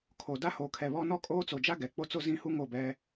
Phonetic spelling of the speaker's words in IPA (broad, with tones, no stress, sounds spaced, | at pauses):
kʰ o˨ d a˦ h oː˨ kʰ ɛ˨ β ɔ˦ n ɔ˦ kʼ oː˦ t͡s o˨ d͡ʒ a˦ ɡ ɛ˨ k͡p o˦ t͡s o˦ z ĩ˦ h u˦ ŋ o˦˨ b ɛ˦